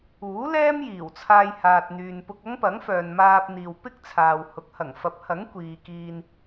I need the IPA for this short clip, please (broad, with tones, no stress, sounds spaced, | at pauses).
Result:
uː˨˥ l ɛː˥ m j iː˨˩ w t͡sʰ aː˧ j h aː˨ t̚ n̪ yː˨ n p ʊ˧ k̚ ɐ˥ ŋ p ɐ˨˥ ŋ f œː˨ n m aː˧ p̚ n̪ iː˨ w p ɪ˥ k̚ t͡sʰ aː˨ w h ʊ˨˥ k̚ h ɐ˨˩ ŋ f ɐ˨˥ p̚ h ɐ˨˥ ŋ kʷ iː˨ k iː˧ n